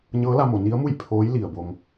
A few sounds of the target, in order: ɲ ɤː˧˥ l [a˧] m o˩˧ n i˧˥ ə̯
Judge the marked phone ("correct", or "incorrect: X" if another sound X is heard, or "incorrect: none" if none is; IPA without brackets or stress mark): correct